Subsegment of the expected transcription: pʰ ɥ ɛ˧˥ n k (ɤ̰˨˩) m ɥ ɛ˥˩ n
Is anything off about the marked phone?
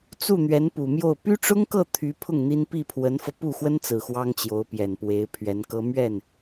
yes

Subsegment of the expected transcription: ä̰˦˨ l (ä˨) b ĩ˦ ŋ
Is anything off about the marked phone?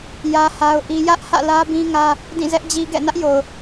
yes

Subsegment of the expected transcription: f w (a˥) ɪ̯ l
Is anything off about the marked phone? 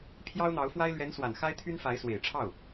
no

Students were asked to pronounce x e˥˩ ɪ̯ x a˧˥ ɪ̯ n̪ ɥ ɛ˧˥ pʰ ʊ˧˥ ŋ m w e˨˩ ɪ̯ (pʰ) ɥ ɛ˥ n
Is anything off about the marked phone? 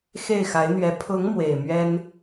yes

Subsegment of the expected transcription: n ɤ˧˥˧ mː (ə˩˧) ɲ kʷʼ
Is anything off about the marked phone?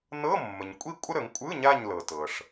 yes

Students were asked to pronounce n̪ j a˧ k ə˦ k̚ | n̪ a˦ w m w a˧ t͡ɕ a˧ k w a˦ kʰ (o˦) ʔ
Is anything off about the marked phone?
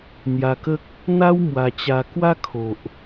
yes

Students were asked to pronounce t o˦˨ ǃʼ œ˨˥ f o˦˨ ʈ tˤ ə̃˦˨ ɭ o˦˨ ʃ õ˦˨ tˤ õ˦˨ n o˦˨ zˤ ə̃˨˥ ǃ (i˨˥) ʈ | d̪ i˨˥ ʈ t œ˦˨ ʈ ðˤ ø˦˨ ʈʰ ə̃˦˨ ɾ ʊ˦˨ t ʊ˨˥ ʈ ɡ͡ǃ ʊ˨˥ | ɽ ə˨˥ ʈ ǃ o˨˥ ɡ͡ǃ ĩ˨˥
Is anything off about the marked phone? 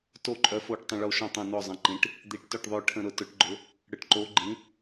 yes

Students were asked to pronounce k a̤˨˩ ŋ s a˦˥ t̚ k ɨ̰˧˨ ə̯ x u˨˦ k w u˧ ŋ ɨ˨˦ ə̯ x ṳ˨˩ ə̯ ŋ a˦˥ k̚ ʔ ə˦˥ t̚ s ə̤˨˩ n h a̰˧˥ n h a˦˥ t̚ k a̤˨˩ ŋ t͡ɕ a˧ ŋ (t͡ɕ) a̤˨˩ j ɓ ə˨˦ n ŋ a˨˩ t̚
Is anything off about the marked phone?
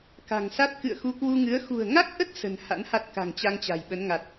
no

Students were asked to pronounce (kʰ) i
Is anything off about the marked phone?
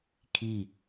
no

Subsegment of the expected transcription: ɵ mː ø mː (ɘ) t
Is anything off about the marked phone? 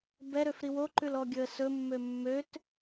yes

